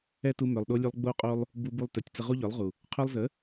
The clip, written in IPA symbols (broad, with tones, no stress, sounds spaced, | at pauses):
ɛ˦ t u˧ m œ˨ lˠ ɗ o˧ lʲ u˧ lˠ ɡ͡b o˦ qʼ o˦ lˠ | b u˧ b u˧ lˠ t œ˨ tʲ t͡s ə˧ ʁ u˦ ʎ œ˨˦ lˠ ʁ u˨ | qʰ œ˧ lˠ z ə˨˦